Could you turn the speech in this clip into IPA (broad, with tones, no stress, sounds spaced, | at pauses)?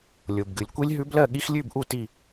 lʲ o˨ b ɡ ɨ˨ lʲ kʷ i˦˥ lʲ ɦ ʉ˦˥ b l ɜ˥˧ ɠ i˦˥ x lʲ ʉ˥˧ b ʔ u˥˧ t i˥˧